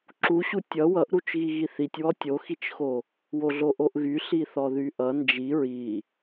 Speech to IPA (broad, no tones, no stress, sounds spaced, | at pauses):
ǁ u ɕ u tʲ ʌ w ʌ ʔ ɾ u t͡ʃ ɣ i ɣ i θ i tʲ w ɔ tʲ o x i t͡ʃ x o | w o ɮ o ʔ o ʔ ɣ y ɬ i θ ɔ ð y ʔ ʌ n d͡ʒ i ɹ i